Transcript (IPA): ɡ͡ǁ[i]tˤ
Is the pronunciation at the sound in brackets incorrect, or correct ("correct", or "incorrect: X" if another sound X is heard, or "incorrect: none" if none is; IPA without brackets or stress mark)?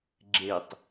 incorrect: e